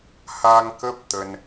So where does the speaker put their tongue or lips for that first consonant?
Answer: throat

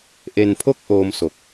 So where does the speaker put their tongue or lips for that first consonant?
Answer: throat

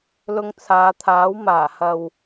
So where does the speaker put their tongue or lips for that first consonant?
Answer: tongue tip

